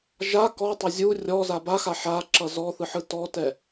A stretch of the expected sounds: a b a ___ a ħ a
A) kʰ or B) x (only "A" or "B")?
B